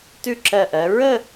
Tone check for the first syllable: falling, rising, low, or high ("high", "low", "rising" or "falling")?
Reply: falling